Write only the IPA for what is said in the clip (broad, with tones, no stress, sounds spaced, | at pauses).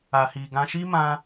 a˨ h i˨ ɡ ã˧ ʃ i˦ m ã˧